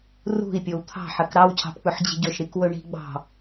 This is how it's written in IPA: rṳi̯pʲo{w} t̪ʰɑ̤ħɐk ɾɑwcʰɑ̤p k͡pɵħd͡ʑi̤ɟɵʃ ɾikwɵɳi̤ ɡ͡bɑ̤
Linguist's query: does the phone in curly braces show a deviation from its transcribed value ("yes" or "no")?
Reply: no